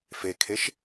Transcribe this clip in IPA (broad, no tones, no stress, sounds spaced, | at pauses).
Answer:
f e kʰ e ʃ